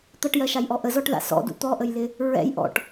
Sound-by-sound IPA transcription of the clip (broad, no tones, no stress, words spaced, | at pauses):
t̪ʌʈjɜʃajʔɔ ʔəzɔʈða̰ sɔ̰dṵ t̪ɔʔəjlɪ | ɹɛ̰j ʔɔ̰ʈ